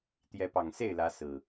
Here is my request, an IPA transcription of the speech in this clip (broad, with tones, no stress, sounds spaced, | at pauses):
t̪ j ɛ˨˦ p ɑ˨˩ ŋ s e˥˨ ɪ̯ l ä˨˦ s ɹ̩˨˩